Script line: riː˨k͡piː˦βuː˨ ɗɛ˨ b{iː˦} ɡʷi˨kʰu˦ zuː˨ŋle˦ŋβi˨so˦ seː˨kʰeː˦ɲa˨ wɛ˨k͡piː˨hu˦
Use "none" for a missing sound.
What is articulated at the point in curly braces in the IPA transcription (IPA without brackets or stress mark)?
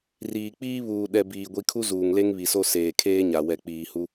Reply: iː˨